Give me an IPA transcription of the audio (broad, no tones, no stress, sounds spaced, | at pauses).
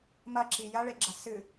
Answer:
m ɐ ǁ i j ɐ ɭ e ɡ͡ǁ ɐ s ɨ